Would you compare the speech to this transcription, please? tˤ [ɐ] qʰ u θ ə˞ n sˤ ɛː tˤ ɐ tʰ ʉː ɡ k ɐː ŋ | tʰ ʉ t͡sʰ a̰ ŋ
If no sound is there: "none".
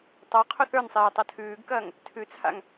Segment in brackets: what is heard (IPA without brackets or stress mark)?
a